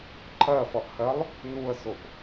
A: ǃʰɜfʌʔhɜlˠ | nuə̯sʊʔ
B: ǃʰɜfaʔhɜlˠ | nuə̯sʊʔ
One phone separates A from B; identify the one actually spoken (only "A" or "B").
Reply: A